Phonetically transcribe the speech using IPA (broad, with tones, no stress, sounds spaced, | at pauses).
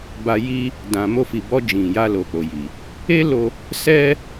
b a˧ j i˦ | d ã˨ m o˧ f i˨ b ɔ˧ d͡ʒ ĩ˨ j a˧ l o˨ k͡p o˨ j i˨ | e˦ l o˧ | s ɛ˦